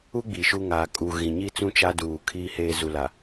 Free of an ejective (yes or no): no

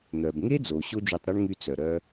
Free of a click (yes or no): yes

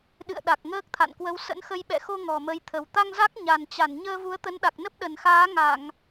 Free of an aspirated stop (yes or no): no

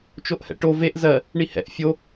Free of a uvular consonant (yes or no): yes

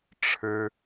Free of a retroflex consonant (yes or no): no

